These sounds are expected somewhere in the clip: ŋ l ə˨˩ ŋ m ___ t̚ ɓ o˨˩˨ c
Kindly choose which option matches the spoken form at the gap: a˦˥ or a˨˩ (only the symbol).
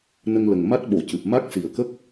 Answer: a˦˥